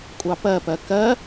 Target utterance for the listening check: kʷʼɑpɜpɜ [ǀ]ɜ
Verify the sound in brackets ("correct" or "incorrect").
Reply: incorrect